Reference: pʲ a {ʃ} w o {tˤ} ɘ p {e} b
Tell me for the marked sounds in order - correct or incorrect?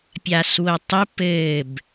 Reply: incorrect, correct, incorrect

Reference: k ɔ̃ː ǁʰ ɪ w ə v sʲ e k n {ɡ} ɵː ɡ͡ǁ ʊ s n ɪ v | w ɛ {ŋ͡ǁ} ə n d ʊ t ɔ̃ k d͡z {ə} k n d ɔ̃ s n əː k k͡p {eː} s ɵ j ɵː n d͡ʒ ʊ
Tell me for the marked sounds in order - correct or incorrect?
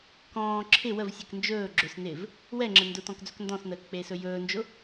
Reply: incorrect, correct, incorrect, correct

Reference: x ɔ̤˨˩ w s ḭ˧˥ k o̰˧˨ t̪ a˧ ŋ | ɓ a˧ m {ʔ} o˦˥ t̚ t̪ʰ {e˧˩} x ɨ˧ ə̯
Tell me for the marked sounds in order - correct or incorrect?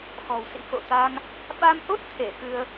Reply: correct, correct

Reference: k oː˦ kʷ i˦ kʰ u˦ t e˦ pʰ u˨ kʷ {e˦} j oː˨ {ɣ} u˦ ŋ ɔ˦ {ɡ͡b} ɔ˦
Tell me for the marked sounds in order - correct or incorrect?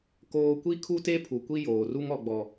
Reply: incorrect, incorrect, correct

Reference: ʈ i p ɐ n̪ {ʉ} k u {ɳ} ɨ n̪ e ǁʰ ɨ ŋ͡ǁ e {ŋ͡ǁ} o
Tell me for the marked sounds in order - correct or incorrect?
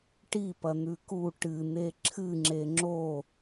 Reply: correct, incorrect, correct

